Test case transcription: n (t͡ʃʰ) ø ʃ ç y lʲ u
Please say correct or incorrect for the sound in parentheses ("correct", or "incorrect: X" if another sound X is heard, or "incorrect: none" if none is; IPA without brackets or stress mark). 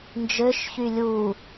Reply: incorrect: d͡ʒ